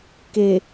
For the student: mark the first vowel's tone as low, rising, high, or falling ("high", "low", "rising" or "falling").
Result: low